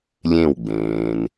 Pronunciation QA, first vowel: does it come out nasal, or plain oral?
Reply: nasal